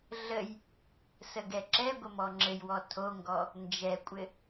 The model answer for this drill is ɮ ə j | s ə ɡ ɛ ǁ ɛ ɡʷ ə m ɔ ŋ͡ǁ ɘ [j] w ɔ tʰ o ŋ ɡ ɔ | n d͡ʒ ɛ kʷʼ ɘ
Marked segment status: correct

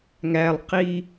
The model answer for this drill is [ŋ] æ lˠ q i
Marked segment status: correct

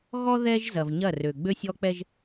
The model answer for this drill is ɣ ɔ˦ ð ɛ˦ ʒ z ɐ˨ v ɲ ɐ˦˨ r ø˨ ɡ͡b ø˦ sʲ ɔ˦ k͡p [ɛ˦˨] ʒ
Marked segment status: incorrect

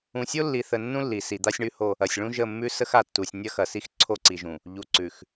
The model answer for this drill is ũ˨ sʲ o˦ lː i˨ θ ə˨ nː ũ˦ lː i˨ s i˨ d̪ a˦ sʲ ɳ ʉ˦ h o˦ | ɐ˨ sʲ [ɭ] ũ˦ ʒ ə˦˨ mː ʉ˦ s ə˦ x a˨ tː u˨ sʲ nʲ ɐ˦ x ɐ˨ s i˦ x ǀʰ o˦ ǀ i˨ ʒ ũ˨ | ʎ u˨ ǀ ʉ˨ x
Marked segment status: correct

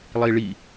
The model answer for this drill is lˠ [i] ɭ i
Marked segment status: correct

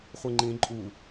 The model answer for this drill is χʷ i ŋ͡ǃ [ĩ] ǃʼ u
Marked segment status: correct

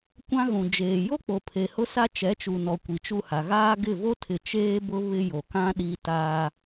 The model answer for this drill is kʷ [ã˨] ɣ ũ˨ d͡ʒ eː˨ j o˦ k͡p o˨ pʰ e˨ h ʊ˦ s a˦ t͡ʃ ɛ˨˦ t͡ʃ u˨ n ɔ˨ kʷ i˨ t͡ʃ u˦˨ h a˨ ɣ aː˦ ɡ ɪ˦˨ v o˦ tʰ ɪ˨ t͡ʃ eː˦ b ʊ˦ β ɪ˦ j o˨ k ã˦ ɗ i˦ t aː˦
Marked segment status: incorrect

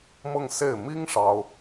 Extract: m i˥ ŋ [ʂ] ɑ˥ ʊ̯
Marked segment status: correct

